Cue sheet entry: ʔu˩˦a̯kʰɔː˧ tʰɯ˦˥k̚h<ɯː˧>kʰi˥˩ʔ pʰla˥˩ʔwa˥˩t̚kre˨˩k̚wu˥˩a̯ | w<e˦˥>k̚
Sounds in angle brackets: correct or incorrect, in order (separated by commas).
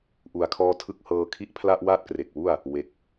incorrect, correct